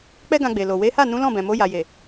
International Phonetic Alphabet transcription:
k͡pɛ˦ɡã˧ɡ͡be˨lo˨ we˨˦ha˦˨ nũ˨˦lɔ̃˦˨bɛ̃˨mo˨˦ ja˧ je˨

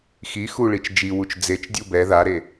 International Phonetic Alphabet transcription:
xi xuɭit͡ʃ d͡ʒiwut͡ʃ d͡zet͡ʃdʲu bɛ ðaɾe

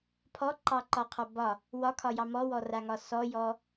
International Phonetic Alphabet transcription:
pʰɔǃɑǃɒqʰɔ bɒ | wɒkʰɒjɑ mɔwɔraŋɒ sɔjɔ

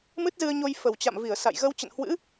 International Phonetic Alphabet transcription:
mɨ˦˥t̚zɨ˧ə̯ɲo˧j fə˨˩wt͡ɕa̰˧˨mvi˧˩ə̯ sa̰˧˨jɣə˧w t͡ɕə̰˧˨nhwɨ̰˧˥

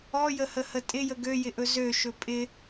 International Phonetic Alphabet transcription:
ɔjəhəhə tʼɪjə ɡøjɪʔɵ zøʃɵ pʼɪ

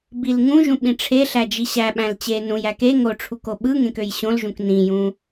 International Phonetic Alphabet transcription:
bilŋũʒũ ɓĩʈ͡ʂʰeɬæ d͡ʒiɕæɓæ̃l t͡ɕe nũjæ ke ŋoʈ͡ʂʰuk oɓɯŋẽk øjɕõlʒũk nĩjũ

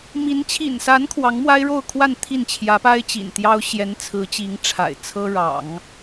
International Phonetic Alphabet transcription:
mi˧˥n t͡ɕʰḭ˨˩nsa˧˥n kʰwɑ˧˥ŋmwa˥ɪ̯ɻo˥˧ʊ̯kʰwa˥˧n t̪ʰi˥˩nt͡ɕʰjä˧˥ pa˥ɪ̯t͡ɕḭ˨˩nt̪jɑ˥ʊ̯ ɕjɛ˧˥nt͡sʰɹ̩˧˥t͡ɕi˧˥ŋ ʈ͡ʂʰa̰˨˩ɪ̯ t͡sʰɤ˥ɻɑ̰˨˩˦ŋ

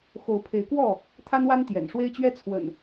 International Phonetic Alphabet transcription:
xo˨˦ʊ̯pʰe˨˦ɪ̯kwɔ˥˨ | t̪ʰa˦nwa˦n t̪jɛ̰˨˩nʂwe˦ɪ̯t͡ɕɥɛ˦t͡sʰwə̰˨˩n

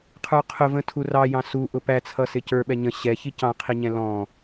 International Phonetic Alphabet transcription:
qʰə˞qʰʊvə̃ tʰurɑjɑ̃ su ʔʊpæt͡sʰʌ sɪcə˞ ɓɛɲə̃ ɕɛ çicɑ̃qʰiɲɛ̃ lɔ̃

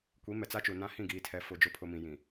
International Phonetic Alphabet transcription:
kʷi˨˦mɛ˨t͡sa˦t͡ʃu˨ nã˦hĩ˦˨ɡiː˨tʰɛ˨ fʊ˨d͡ʒʊ˨˦ pʰʊ˨mĩ˨jĩ˨

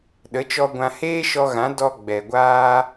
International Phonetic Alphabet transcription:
ɗə˨˦t͡ʃɔ˧ɡʷã˧ heː˦ʃɔ˧ɣã˨˦ dɔ˧ɡ͡bɛ˨ɡʷaː˧

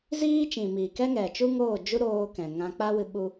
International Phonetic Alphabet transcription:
ziː˦t͡ʃĩ˨ miː˨kɛ˦ŋɛ˨t͡ʃu˦ ŋoː˦˨d͡ʒu˦ ɾoː˧kɛ̃˨ ŋã˧k͡pa˦wɨ˧ ɓu˦

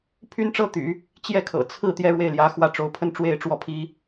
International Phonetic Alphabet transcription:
pʰy˥n ʈ͡ʂɤ˥t̪y̰˨˩˦ | t͡ɕjɛ˥˩kʰɤ̰˨˩ t͡sʰɹ̩˥˩ t̪jɛ˥ɻwe˥˩ɪ̯ljä˧˥xwä˥˩ ʈ͡ʂo˧˥ʊ̯pʰə˥n ʈ͡ʂwe˥˧ɪ̯ʈ͡ʂwɔ˥˩pʰi˥

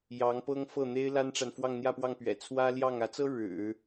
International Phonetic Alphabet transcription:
jɑ˧˥ŋ pɤ˥ŋfɤ˥˩ n̪e˥ɪ̯la˥nʈ͡ʂa˨n fwɑ˥˧ŋn̪jä˥˧pwɑ˥˩ŋpɥɛ̰˨˩ t͡sʰwä˥ljɑ˥˩ŋ ä˧˥t͡sɤ˥ ɻɻ̩˨˩˦

